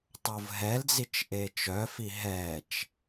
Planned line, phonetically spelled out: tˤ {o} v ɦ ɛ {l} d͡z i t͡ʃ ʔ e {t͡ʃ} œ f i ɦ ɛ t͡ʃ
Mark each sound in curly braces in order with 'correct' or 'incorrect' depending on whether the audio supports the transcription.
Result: correct, correct, correct

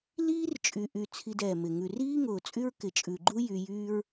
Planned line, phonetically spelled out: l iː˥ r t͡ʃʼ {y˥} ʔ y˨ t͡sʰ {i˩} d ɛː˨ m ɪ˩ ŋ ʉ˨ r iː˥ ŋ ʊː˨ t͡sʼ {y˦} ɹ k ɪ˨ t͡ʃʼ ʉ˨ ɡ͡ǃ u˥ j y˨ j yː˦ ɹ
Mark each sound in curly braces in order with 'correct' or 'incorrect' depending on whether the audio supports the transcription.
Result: incorrect, incorrect, incorrect

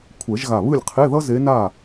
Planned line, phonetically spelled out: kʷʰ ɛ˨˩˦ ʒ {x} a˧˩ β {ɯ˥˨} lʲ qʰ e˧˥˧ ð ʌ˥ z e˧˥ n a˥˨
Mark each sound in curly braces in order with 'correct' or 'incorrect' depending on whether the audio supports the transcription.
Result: incorrect, correct

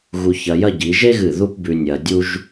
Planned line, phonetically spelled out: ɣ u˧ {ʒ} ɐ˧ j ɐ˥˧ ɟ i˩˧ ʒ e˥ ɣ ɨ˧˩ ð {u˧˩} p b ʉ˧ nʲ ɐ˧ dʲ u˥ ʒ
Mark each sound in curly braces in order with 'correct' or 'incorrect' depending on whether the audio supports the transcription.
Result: incorrect, incorrect

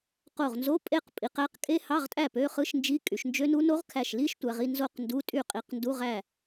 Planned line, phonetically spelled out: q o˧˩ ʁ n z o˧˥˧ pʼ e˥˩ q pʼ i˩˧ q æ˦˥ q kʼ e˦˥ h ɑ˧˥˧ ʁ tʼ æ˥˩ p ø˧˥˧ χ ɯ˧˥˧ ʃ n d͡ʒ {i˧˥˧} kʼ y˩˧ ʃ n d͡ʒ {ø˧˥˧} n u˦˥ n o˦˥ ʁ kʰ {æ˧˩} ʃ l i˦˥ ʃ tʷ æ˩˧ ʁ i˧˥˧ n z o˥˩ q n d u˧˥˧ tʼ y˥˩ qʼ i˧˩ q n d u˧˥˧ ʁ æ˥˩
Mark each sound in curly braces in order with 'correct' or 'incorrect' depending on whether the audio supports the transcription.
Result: correct, incorrect, correct

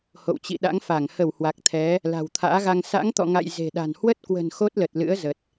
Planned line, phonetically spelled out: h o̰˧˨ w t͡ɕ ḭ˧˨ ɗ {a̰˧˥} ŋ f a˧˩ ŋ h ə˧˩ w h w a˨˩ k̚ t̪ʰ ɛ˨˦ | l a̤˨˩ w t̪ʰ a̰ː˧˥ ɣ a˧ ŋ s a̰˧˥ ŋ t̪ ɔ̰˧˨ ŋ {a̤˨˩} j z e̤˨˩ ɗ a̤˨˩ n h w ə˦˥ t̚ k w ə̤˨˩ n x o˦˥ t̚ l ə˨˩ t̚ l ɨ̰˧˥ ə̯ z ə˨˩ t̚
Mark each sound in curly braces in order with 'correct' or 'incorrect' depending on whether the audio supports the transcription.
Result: correct, incorrect

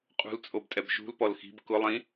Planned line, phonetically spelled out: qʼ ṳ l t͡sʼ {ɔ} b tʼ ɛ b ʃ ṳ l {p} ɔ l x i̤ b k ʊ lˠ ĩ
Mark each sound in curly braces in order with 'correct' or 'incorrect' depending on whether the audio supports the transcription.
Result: incorrect, correct

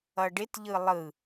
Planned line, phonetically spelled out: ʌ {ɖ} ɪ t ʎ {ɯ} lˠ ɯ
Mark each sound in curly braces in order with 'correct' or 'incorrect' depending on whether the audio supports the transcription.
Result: correct, correct

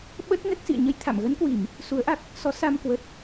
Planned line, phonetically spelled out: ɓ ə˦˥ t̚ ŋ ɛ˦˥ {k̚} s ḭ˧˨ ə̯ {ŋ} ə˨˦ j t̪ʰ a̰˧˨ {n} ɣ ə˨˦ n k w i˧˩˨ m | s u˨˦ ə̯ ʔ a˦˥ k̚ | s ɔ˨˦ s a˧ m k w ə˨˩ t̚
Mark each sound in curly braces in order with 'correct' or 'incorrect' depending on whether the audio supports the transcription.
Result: correct, incorrect, incorrect

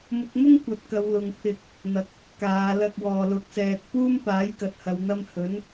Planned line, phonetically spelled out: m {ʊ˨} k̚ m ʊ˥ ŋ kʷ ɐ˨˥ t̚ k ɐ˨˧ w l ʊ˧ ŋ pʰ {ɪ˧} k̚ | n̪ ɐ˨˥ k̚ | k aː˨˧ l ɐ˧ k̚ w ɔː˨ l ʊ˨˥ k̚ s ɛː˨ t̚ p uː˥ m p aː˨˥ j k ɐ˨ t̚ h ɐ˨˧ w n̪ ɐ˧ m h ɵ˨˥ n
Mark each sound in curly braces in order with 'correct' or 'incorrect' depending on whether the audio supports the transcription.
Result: incorrect, correct

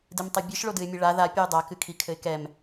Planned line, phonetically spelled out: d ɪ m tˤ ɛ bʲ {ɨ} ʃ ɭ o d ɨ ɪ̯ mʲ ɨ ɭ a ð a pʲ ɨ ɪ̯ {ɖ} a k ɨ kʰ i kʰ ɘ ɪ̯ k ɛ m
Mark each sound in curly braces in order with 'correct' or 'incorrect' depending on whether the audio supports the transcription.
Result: correct, incorrect

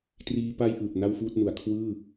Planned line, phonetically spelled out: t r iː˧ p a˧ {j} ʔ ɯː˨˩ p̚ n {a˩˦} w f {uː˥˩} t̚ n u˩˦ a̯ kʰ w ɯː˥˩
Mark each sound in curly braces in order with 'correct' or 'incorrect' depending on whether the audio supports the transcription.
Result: correct, incorrect, correct

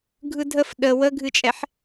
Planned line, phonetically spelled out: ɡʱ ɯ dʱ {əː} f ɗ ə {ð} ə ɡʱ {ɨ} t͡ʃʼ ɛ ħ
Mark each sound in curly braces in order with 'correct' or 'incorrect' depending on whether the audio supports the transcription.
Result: incorrect, incorrect, correct

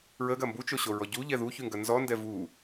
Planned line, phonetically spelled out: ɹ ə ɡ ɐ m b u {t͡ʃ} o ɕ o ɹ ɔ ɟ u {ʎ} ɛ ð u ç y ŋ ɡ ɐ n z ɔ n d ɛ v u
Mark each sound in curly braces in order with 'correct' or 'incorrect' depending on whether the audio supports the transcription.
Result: correct, correct

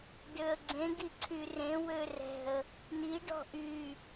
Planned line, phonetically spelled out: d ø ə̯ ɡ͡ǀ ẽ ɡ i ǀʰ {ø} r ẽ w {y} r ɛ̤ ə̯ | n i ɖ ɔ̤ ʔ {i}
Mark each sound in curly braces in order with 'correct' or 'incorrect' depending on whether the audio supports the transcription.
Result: incorrect, incorrect, incorrect

